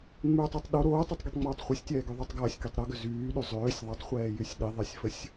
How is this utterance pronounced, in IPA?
ŋ͡m yː tˤ i tˤ ɗ o ɾ oː tˤ y tˤ ɡ i tˤ ŋ͡m oː tˤ χʷ ə sʲ tʲ ɛː ɡ ø ðˤ o tˤ ɡ ɐː sʲ k i tˤ ɾ o ɡ ʏ z yː ɗ y zˤ øː sʲ ðˤ ʏ tˤ χʷ ɛː j y sʲ ɗ i ðˤ ɛ sʲ f ə sʲ

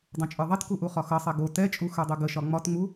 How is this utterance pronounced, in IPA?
dˤ ũ t͡ʃʼ ə˞ ðˤ ɛ t k u ʔ u χ ɒ x ʌ sˤ ɛ ɡ o t ɛ t͡ʃʼ u x ə˞ dˤ u ɡ ə ʃ ɒ ŋ͡m ɒ t ŋ͡m u

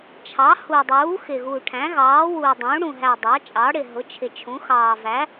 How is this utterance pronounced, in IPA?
t͡ʃʰ ɑ˩˥ h u˨˩ dˤ uː˩˥ x ɪː˨˩ ɣ uː˨˩ ʈʰ æ̃˩˥ ɣ ɑː˩˥ w uː˨˩ dˤ ũː˩˥ ɽ ũ˨˩ ɦ æ˨˩ dˤ ɑ˩˥ t͡ʃʼ ɑː˩˥ ɽ ɪ˨˩ ɦ ʊ˩˥ t͡ʃʰ ɪ˨˩ t͡ʃʰ ũ˩˥ x ɑː˨˩ v æ˩˥

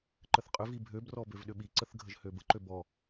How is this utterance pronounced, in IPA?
ǃ ə θ qʼ ʏ v i bʱ ø b r ɔ b ø v ɗ ʏ ɓ i ǀ ə θ ɡʱ ə ʒ h ø b ə ǃ ø b ɔ

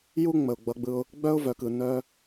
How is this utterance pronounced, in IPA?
j u˦ ŋ͡m ə˨ ʊ̯ ɡ͡b ʌ˧ ɡ͡b ɯ˧ ʊ̯ | ɡ͡b œ˦ ʊ̯ v œ˨ k ɯ˨ n œ˧

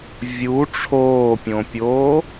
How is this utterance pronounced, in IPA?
vʲ u ʈ͡ʂʰ oː pʲ õ pʲ oː

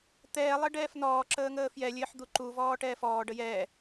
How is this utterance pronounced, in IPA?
t̪ ɛː lˠ ə ɖ ɛː f n ɔː ǁ əː ŋ əː f j ɛ lʲ ɘː ħ d̪ u ǃ u v ɔː ʈ ɛː f ɔː ɖ ə j ɛː

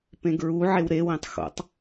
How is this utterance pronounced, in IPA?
p ẽ ɡ ɹ u ʕ e w ɾ e w ĩ tˤ x o̰ tˤ

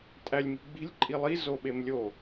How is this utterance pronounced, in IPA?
tʼ æ lʲ m i̤ ɡ͡b i̤ lʲ ǃʼ i lˠ i z o ɓ e m lʲ o

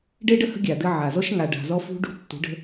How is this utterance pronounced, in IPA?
ɖ e˦ ɖ ə˦ h ə̤˦ ɡʲ a˨ d ɘ˦ ʕ a˨ z ɔ˦ ʃ ŋ a˨ ɖ a̤˨ z ɔ˦ f ṳ˦ ɖ ṳ˦ tː ṳ˨˦ ɖ ə̤˦

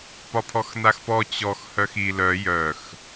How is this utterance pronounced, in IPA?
p ɒ pʰ ɔ x n a x p ɔ t͡ɕ ɔ x h œ x i l œ j œ x

